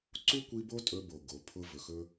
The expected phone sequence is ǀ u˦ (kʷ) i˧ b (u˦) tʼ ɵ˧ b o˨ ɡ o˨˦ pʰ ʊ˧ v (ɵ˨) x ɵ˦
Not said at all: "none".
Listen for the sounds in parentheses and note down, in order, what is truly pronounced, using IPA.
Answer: kʷ, o˦, ɵ˨

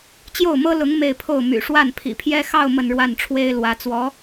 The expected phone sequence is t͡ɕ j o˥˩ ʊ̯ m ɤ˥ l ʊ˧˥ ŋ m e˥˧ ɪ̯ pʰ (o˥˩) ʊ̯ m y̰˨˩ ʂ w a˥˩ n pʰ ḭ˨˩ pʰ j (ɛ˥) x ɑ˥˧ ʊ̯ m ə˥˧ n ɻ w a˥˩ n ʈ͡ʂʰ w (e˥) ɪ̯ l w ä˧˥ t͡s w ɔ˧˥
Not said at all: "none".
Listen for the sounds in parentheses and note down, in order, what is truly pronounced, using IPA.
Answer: o˥˩, ɛ˥, e˥

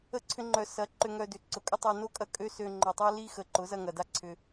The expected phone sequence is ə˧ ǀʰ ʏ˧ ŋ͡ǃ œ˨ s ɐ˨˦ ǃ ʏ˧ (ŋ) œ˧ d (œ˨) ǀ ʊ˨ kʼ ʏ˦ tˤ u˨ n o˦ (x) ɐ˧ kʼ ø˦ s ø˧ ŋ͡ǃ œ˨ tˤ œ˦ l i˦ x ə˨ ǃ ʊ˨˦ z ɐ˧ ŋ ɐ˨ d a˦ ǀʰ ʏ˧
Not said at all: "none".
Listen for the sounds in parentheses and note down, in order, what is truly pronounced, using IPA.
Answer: ŋ, ø˨, kʼ

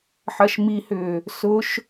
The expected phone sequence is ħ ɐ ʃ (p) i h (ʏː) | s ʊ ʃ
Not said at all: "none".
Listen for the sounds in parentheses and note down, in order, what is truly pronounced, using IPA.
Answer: m, ʏː

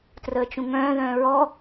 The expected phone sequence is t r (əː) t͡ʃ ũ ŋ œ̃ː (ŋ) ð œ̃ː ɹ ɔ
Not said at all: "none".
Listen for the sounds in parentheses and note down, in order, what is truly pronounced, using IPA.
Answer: əː, none

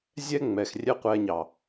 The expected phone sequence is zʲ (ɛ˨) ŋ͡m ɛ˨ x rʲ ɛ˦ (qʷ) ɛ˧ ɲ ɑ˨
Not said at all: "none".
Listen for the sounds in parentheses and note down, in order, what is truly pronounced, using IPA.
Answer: ɛ˦, qʷ

